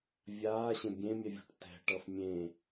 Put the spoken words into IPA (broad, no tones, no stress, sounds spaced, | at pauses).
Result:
vʲ aː ɕ ẽ bʲ ẽ mʲ ɛ vʲ o̤ ʈ t ɛ̤ ʈ ʌ f mʲ ẽ